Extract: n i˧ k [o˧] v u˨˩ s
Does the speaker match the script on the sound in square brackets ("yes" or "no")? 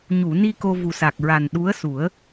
yes